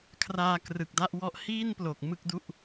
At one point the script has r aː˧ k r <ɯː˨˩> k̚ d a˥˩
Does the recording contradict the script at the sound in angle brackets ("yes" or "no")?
yes